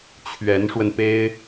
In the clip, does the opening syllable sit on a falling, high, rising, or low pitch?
rising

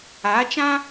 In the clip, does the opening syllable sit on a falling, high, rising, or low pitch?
rising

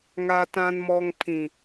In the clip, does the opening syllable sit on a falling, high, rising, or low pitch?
low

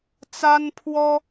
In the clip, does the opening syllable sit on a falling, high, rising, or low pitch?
high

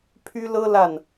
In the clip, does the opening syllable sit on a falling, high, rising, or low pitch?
high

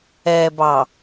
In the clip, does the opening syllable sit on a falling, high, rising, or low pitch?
low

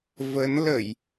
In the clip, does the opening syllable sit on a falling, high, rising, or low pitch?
rising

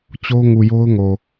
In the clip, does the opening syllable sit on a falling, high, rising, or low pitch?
high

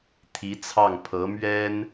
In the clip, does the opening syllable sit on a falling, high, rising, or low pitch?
rising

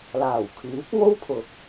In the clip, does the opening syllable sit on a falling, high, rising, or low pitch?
low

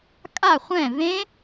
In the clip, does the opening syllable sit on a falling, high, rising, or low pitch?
falling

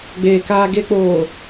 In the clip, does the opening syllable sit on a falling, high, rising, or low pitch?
low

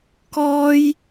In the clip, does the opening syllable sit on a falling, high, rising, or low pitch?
high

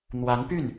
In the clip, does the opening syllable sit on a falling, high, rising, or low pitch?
rising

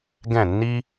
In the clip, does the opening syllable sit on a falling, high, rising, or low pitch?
falling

